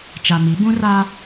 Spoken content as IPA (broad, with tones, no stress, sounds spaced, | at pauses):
t͡ʃ a˨ m i˨˦ b ũ˦ r a˦